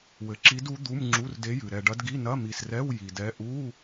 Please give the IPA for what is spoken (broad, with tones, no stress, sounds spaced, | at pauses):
w ɘ˨ ǁ i˧˥ d u˧˥ d̪ u˧˥˧ m ŋ͡ǁ u˧˥˧ r d e˧˥ j ɨ˨ ɾ ɛ˨ ɖ ɐ˧˥ d ɡ i˧˥˧ n ɐ˧˥˧ m i˨ s r ɛ˧˥˧ w j i˨ d ɛ˧˥ ʔ u˧˥˧